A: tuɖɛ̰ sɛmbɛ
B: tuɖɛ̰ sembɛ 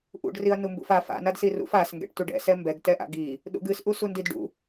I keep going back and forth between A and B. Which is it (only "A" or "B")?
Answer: A